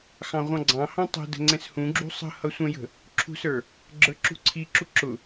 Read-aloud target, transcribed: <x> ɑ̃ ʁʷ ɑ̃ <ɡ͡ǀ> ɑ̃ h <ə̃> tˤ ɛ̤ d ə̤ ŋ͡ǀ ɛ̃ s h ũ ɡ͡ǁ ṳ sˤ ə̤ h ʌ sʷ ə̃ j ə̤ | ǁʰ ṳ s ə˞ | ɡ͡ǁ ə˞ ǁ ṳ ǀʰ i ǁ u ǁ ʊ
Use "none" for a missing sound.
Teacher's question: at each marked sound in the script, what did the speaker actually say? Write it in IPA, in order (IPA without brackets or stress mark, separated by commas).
x, ɡ͡ǀ, ɑ̃